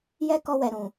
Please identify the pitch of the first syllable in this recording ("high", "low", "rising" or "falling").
high